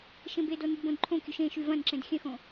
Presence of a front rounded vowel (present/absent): present